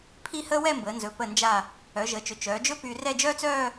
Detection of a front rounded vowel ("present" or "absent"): present